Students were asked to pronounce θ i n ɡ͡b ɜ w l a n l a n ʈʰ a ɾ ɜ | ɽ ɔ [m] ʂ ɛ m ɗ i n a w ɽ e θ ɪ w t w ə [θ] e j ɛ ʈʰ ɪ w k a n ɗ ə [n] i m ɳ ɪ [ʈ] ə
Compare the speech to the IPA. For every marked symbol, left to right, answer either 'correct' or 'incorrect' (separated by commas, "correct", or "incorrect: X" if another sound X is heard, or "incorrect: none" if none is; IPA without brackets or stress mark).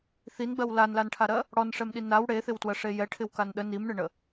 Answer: incorrect: n, incorrect: ʂ, correct, incorrect: ɳ